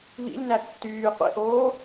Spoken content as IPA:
β ḭ lʲ n æ tː yː qʷ ḛ ʔ oː

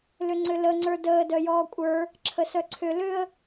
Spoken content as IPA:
l ʏ ŋ͡ǀ ʏ l ə ŋ͡ǀ ə˞ d əː d œ j ɔː kʷʼ ə˞ | ǁʰ ə s œ ǀʰ ʏ l ʏ ə̯

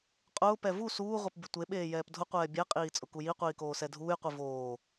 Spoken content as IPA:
qʼ ʊː p ɛ v u s uː ʁʷ e p bʲ ʊ tʷ e ɓ eː j ɛː p dʱ ʊ qʷ ɛː bʲ ɛ qʼ iː t͡sʼ ʊ k u j i qʷ iː k oː s ɛ dʱ uː j qʷ i v oː

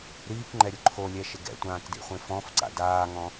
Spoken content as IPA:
ɾ iː k ŋ͡ǃ ɛ ɾʲ ʊ ǃʰ o lʲ ɛ ʃ ɪ ɡ ɛ̰ tʷ ãː k d ḭ χʷ ẽ f ɔ̃ f ǀ a̰ d aː ŋ ɔ̃

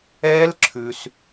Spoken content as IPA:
ɛː˦˥ l ǁʰ ʉ˨ s

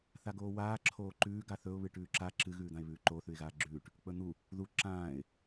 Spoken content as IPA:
θ a ɡ oː w aː ǁʰ oː ǃ ʉː ɡ a θ ɵ ʊ̯ β ɨ ʈ ʉː ǁ a ǁ ɨ ɣ ʉː d̪ ã ɪ̯ β ʉː ǃ o θ ʉ ɪ̯ ɣ aː ɡ͡ǁ ʉː ʈ | k͡p ɵ n̪ u | ð u ǁ ãː ɪ̯

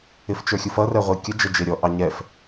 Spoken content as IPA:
ɪ f t͡ʃ ə˞ xʲ u f ʌ r ɛ ʁʷ i kʲ ə d͡ʒ ə d͡ʒ ɪ ɾʲ ɔ ʔ ɑ ɲ ɛ f

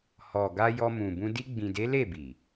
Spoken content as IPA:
h ɔ˨ ɡ a˧ j ɔ˧ m ũ˨ b ũ˧ d i˧ ɡ͡b ĩ˨ d e˨˦ l e˦˨ b i˨

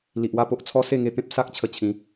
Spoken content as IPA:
l i˨ ʔ w a˥˧ p o˦ ʔ t͡sʰ ɔ˦ s e˥˧ ŋ e˧ t̪ ẽ˦ p̚ s a˦ k̚ t͡ɕʰ ə˧ t͡ɕʰ ĩ˨˦

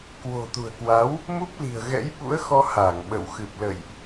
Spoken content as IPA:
k w o̤˨˩ t̪ ṳ˨˩ ə̯ k w a˨˦ w | m u˦˥ p̚ l i̤˨˩ ə̯ ɣ ɛ̰˧˥ j ɓ ṵ˧˥ ə̯ x ɔ˧ h a˧˩ ŋ ɓ ə̰˧˨ w x ɨ˨˩ p̚ l ə̰˧˨ j ʔ

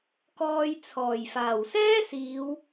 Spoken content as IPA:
k ɔː˧ j t͡sʰ ɔː˨˩ j f aː˨˩ w s ɛː˥ s iː˨˧ w

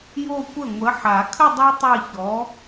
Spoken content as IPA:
j o˥˧ kʷ ə˥˩ ŋʷ ə˨˥ ħ a˨˩˦ kʰ ə˥˧ dˤ o˦˥ tˤ e˥˧ ç ɔ˨˥

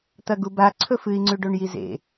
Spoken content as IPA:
t̪ ɐ ɡ u b a ǀʰ ɵ f ɨ i̯ ŋ͡ǀ ʉ ɖ o ɳ j i z ḛ

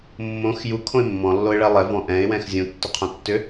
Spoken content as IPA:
mː õ x j u kʰ õ ɪ̯ mː ɔ̃ lː o ɪ̯ ɭ ɛ lˠ ɛ v ɔ̃ ʔ ɛ̃ ɪ̯ w ɛ̃ x zʲ ũ tː ʏ qʰ õ tː ʏ

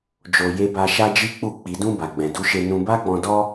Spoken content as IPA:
d͡ʒ o˧ j e˧ b a˧ ʃ a˦ d͡ʒ i˦ k͡p u˦˨ k͡p i˨ d ũ˧ b a˨ ɡ͡b ɛ̃˨ d u˨˦ ʃ e˧ n ũ˧ b a˦ ɡ͡b ɔ̃˧ d ɔ˦

